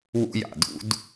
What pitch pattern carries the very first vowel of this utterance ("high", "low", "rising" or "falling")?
high